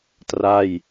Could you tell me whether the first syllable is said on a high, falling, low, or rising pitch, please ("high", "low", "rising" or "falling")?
falling